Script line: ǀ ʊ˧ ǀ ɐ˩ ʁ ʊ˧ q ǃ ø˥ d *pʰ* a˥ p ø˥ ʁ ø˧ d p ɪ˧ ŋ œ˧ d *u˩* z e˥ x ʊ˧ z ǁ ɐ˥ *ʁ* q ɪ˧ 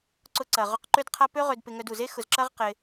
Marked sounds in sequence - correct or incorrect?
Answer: incorrect: qʰ, correct, correct

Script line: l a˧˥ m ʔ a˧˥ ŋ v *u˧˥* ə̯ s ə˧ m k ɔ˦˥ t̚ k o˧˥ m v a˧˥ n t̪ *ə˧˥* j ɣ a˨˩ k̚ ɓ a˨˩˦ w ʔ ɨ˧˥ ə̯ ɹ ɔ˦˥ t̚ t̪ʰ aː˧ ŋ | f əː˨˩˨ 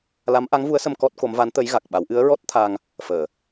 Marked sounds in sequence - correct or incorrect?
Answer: correct, correct

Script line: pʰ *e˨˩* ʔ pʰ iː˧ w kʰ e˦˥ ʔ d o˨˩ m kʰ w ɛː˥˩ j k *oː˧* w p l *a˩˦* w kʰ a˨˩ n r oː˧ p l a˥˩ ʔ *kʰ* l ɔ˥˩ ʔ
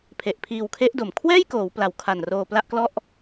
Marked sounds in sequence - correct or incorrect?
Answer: correct, incorrect: oː˩˦, incorrect: a˨˩, incorrect: k

